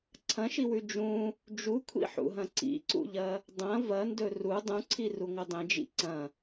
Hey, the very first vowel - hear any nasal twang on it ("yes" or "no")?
yes